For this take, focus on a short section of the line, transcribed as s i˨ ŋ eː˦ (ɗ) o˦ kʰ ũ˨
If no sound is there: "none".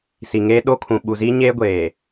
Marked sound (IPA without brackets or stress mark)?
ɗ